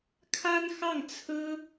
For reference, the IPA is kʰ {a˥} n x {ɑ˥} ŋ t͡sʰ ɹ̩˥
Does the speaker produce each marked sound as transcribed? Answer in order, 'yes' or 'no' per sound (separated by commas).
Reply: yes, no